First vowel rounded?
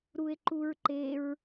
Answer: yes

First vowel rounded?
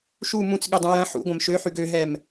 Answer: yes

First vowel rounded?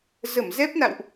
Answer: no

